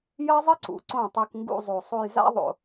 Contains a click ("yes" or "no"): yes